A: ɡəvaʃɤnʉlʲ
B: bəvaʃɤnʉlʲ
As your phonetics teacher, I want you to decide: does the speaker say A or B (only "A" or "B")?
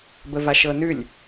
B